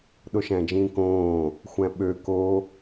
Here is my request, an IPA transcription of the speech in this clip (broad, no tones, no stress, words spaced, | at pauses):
ɗoʃæ̃d͡ʒĩːkõː | xʷæ̃ɓø ko